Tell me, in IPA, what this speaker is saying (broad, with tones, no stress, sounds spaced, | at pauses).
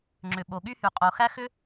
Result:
ŋ͡ǁ ʏ˩ ɓ o˩ ɠ y˥ h y˩ qʼ o˩ x æ˥ x ʏ˥